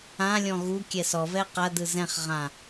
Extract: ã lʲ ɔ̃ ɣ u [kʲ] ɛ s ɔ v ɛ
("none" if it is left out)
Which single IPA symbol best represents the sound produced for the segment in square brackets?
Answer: kʲ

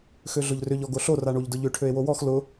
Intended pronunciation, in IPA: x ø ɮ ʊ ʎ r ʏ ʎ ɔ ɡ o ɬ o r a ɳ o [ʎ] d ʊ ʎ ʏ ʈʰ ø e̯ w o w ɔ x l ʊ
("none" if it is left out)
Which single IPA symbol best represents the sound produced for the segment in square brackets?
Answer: ʎ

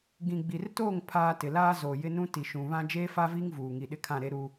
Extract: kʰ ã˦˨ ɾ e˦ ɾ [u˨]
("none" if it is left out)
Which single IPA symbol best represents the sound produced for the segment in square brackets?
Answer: u˦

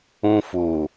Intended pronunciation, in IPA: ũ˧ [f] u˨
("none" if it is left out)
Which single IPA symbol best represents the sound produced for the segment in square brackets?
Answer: f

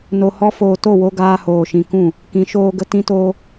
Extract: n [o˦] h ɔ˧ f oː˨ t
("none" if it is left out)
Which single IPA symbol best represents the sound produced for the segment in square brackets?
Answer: o˨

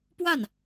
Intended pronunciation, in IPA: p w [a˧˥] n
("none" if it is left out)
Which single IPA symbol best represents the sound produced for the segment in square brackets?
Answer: a˥˩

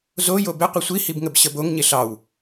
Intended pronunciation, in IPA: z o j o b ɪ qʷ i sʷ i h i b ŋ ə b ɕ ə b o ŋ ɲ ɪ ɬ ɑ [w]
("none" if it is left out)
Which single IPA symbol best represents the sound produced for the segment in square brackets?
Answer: w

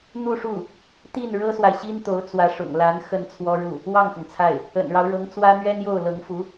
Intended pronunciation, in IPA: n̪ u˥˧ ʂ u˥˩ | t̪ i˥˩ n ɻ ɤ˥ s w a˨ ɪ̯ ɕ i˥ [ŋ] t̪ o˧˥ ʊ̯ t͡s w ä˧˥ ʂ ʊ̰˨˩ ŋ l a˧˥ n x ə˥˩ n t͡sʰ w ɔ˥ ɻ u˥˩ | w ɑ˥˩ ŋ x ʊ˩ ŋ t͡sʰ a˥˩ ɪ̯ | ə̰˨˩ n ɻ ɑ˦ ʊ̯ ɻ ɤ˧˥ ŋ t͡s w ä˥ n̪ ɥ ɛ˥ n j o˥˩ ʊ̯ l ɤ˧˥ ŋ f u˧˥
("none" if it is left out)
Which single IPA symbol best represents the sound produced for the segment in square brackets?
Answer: n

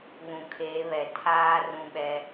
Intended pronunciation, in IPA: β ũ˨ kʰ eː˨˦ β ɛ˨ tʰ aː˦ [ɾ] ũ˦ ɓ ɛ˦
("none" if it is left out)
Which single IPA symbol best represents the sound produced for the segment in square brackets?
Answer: r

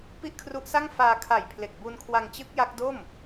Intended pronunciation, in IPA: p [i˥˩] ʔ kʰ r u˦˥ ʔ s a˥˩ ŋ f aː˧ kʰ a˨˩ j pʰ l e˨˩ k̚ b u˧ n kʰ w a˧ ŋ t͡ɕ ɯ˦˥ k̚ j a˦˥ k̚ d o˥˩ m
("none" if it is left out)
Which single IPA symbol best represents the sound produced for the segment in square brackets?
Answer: i˥˩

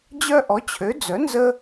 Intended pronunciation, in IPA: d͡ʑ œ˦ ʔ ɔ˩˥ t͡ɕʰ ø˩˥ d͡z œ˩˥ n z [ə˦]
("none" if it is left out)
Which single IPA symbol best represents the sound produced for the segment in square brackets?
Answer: ə˦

